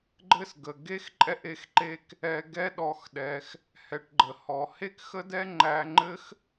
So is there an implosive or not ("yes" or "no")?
yes